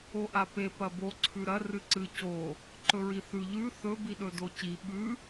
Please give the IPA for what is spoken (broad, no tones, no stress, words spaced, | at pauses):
oʔape pɐbo ǀʰʉɾɐ rɨǀɨ co | ǃɵɹiθʉ ʎʉ θɵ biɗɵdoci ɓʉ